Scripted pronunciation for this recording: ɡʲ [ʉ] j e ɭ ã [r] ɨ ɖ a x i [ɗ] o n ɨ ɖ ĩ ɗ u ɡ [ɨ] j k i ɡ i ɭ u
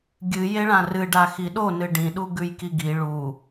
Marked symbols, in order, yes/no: no, yes, yes, no

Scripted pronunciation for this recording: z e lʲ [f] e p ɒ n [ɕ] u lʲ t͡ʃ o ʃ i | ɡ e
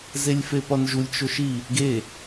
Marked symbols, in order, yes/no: yes, no

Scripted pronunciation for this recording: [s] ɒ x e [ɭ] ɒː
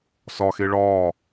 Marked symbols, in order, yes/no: yes, yes

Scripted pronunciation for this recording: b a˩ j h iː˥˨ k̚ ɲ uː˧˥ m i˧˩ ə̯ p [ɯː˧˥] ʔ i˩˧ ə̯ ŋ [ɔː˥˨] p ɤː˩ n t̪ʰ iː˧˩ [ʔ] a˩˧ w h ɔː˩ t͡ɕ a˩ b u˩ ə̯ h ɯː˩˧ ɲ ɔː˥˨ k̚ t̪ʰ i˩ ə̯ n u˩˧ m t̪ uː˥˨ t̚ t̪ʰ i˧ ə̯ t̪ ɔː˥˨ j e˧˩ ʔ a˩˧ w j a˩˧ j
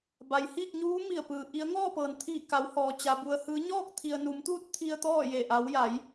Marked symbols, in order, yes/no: no, yes, no

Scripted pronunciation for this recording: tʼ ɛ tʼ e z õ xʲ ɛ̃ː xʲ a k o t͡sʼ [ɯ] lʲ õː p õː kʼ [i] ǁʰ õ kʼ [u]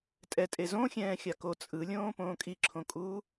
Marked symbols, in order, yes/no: yes, yes, no

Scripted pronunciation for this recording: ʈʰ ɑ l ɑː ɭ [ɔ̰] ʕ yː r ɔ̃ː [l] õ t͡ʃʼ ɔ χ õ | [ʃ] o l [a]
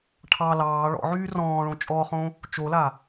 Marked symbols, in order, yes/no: yes, no, no, yes

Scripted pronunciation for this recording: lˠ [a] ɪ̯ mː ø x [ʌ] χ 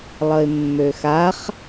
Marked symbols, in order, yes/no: no, no

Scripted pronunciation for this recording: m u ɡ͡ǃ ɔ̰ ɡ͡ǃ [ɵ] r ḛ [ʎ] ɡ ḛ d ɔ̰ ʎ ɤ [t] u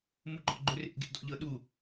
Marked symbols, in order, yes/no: yes, no, no

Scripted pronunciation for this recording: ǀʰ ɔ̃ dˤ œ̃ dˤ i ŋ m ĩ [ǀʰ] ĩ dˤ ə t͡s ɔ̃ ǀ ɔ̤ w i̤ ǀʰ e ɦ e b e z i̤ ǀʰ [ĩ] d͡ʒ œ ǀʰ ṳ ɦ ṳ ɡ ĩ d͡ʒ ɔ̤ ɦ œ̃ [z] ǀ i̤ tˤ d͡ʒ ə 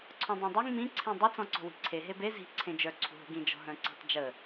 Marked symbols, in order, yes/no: yes, no, no

